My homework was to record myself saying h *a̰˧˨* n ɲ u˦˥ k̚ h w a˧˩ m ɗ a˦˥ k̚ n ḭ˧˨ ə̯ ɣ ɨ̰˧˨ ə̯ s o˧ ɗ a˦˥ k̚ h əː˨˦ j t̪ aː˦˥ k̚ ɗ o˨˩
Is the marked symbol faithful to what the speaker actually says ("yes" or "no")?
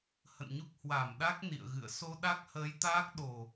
no